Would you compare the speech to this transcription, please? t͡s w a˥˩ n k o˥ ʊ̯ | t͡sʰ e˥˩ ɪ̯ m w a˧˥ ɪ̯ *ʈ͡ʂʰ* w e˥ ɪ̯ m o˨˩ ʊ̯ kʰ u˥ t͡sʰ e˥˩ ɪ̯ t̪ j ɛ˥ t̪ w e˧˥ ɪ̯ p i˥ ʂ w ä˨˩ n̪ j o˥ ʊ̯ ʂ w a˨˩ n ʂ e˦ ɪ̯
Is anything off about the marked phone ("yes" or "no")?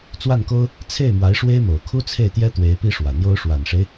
yes